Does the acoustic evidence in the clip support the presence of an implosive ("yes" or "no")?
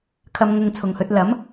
no